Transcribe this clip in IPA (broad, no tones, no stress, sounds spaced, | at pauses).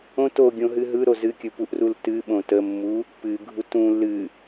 õ t o ɡʲ õ ɦ ɨ ɦ ɯ ɾ o z ɨ kʲ ɯ p u ʔ r u l t ɨ ɓ õ t ə mː u | p ɨ ɡʱ u t ũ l ɨ